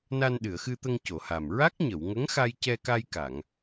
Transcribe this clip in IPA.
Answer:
na˧nɗɨ˨˩˨ə̯xɨ˧t̪ə˧ŋ co˨˩˨ha˨˩m ɹa˦˥k̚ɲə˨˩˨wŋə˧˥ŋxa˧j cɛ˧ka˧jka˨˩˨ŋ

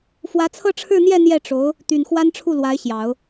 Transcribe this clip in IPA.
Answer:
fwä˧˥t͡sʰɤ˥˧ʈ͡ʂʰɻ̩˥˧n̪jɛ˥˧ n̪jɛ˥˩ʈ͡ʂo˧˥ʊ̯ | t̪y˨˩nxwa˥nʈ͡ʂʰu˥˩lwa˧˥ɪ̯ ɕjɑ˨˩˦ʊ̯

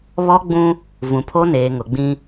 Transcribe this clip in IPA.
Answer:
βɔ˦ɡ͡bũ˦ | vũ˨pʰo˦neː˨ŋʊ˨ ɡ͡bĩ˦

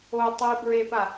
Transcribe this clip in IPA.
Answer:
o tˤibɹepa

